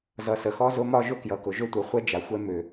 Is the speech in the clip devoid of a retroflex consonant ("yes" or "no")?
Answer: yes